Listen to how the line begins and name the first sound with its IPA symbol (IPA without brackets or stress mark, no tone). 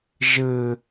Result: ʒ